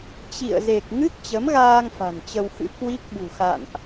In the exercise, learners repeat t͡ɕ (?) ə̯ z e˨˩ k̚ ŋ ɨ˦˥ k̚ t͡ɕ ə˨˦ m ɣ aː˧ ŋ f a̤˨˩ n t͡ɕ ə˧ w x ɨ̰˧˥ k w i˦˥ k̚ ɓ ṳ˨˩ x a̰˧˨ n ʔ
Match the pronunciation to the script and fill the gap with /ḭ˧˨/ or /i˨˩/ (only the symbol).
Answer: ḭ˧˨